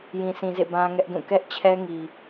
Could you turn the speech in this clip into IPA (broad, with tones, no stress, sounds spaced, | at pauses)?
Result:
j ĩ˨ sʰ ĩ˨ z ḛ˦˨ b ã˦ ŋ ɛ˦ ʔ d ũ˦˨ k ɛ˦ ʔ t͡ɕʰ ɛ˦ ŋ i˨